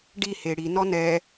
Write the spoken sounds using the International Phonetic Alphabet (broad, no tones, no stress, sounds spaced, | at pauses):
ɖ i h e ɽ i n ɔ n ɛ